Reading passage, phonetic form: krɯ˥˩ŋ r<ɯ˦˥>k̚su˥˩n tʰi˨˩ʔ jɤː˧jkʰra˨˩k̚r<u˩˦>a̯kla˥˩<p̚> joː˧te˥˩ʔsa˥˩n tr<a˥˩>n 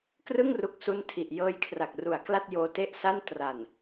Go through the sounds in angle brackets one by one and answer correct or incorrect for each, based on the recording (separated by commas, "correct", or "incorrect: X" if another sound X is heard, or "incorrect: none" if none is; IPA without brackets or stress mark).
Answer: incorrect: u˦˥, incorrect: u˨˩, incorrect: t̚, incorrect: a˨˩